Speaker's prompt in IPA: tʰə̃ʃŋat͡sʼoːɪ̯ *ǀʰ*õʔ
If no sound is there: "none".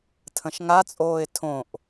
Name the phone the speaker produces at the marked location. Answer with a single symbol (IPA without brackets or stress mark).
tʰ